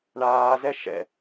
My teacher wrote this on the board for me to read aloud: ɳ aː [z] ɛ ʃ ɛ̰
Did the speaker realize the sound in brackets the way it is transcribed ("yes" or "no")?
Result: yes